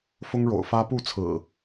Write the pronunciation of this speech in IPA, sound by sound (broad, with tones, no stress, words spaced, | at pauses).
fʊ˦ŋɻo̰˨˩ʊ̯ fä˦ pu˥˨t͡sʰɹ̩˨˩